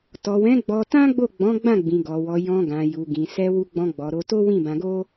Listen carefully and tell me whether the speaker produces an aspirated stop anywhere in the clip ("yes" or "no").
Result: no